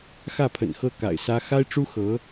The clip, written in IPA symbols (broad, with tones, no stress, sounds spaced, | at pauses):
x ä˥˩ pʰ ə̰˨˩ n x ɤ˥˩ k a̰˨˩ ɪ̯ s ä˥ x a˥ ɪ̯ ʈ͡ʂ u˥ x ɤ˧˥